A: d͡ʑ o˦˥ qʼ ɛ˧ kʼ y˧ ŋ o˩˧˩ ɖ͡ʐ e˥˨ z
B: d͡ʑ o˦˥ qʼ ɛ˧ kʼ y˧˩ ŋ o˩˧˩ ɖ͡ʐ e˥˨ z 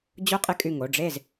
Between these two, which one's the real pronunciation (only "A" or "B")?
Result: B